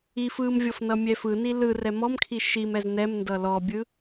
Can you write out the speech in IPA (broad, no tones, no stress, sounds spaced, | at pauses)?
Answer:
i f ɯ m vʲ ɔ f n ʌ mʲ ɛ f ɯ n i l ɯ r ɛ m ɔ m kʰ i ʃ i m ɛ z n ɛ m n d ʌ l ɔ bʲ ɯ